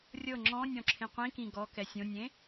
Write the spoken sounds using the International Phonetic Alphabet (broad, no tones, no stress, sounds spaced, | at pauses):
rʲ ɤ ŋ͡ǁ ɔ̃ nʲ ɔ̃ ǁʰ ẽ qʷ ĩ k ĩ ɡ ɔ k ɛ sʲ õ nʲ ẽ